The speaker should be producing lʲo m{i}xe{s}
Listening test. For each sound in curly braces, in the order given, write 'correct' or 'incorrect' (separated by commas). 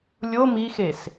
correct, correct